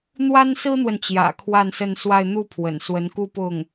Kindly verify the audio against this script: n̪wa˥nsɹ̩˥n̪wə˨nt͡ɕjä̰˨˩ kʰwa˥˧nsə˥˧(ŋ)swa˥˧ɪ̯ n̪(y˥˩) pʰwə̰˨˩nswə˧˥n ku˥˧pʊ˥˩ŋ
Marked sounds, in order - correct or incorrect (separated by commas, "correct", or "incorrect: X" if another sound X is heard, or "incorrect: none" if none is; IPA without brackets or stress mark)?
incorrect: n, incorrect: u˥˩